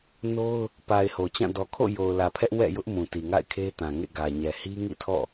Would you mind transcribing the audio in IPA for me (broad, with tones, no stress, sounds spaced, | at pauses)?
n o˦ ʊ̯ | p a˨ ɪ̯ h o˨ t͡ɕ ã˦˨ d ɔ˨ kʰ o̰˦˨ j o˨ ʊ̯ l ä˨ pʰ ɛ˦ ʔ w ɛ̰˦˨ j ʊ˦ ʔ m ũ˨ t i˨ ŋ a̰˦˨ ɪ̯ kʰ e˦ t ã˨ ŋ ḛ˦˨ ɡ ä˨ ɲ ɛ˨ h i˦ ŋ ḭ˦˨ tʰ ɔ̰˦˨